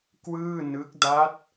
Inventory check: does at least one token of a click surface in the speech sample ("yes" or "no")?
no